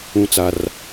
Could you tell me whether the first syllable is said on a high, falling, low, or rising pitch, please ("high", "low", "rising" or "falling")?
high